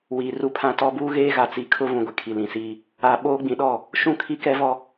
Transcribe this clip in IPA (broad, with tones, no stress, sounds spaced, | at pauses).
w iː˨ r u˦ pʰ ã˦ t ɔ˦ b uː˦ ɣ eː˦ ɣ a˨ t͡s i˨ kʰ ʊ˦ v ũ˨ ɡʷ ɛ˨ kʰ i˨ l ĩ˨ s iː˦ | a˨ ɓ oː˦ ɡ͡b ĩ˨ ɗ ɔ˦˨ | ʃ ũ˦˨ kʰ i˦ k ɛ˦ v ɔ˦